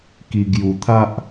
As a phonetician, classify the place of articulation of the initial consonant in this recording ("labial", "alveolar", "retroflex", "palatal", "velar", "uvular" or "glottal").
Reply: velar